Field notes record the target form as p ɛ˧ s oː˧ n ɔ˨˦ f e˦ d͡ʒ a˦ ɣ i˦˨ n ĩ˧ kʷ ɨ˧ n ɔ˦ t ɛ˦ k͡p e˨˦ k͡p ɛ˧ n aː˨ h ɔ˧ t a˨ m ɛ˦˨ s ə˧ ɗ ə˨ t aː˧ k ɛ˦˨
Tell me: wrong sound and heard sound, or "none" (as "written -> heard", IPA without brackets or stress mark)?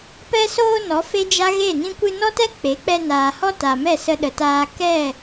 i˦˨ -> e˦˨